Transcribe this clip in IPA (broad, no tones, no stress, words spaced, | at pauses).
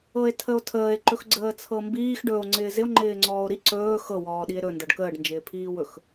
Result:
ɤe̯tʰəo̯tʰəːe̯ ǃɵxɡ͡ǀəːt͡sʰɤmbiːx ɖɵo̯ ŋ͡ǀɪːzɪo̯ ŋ͡ǃɪːŋ͡ǀɔːo̯ɾi ǀɵː xɤ wɔːɗie̯ɾɵ ndɤɖkəːɖ nd͡ʒɪːpʰiːwɵx